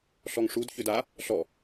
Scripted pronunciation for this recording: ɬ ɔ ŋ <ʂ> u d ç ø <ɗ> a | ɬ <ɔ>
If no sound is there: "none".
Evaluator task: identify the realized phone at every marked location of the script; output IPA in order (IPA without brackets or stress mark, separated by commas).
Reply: ʂ, d, ɔ